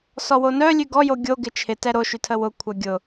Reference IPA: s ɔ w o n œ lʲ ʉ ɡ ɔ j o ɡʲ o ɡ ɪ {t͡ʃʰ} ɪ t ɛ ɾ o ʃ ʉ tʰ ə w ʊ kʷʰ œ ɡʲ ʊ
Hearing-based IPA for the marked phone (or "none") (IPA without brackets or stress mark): t͡ʃʰ